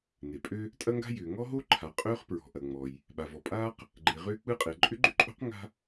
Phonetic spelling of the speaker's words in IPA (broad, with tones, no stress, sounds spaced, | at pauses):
n e˩ pʼ ø˥ | tʼ ɐ˥ ŋ ɡ a̤˥ j ʏː˩ ŋ ɔ˥ ɦ o˥ ǃʰ a˩ qʼ ʏː˥ χ p ɹ ɔ̤˩ ʔ ɐ˩ ŋ͡m ɔ˩ j | ɓ a˩ v ɔ˩ pʼ aː˥ q | ɡ͡ǃ e˩ ʁ ʏː˥ k͡p ɯ˥ qʼ e˩ ǃʼ ʏ˥ ɡ͡ǃ ʏ˥ ǃʼ o̤˥ q ŋ a̤˥